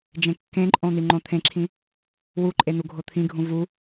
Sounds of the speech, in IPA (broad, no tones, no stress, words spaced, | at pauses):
d͡ʒẽkːẽǃʼõ n̪iŋ͡ǃõt̪ʰẽǁʰĩ | wuǃʼe n̪uɡʱot̪ʰĩɡʱũ vu